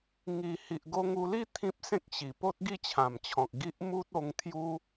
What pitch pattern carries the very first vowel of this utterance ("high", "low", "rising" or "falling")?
low